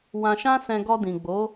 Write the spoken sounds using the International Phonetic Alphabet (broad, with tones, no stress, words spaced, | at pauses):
wã˧ʃã˦sɛ̃˧ ɡɔ˧dĩ˨ɡ͡bo˨˦